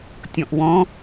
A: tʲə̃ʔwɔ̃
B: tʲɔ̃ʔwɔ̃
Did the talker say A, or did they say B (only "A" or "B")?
B